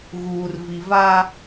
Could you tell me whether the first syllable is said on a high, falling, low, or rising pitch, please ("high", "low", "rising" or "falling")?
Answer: low